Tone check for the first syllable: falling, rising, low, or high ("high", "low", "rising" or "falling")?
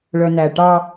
low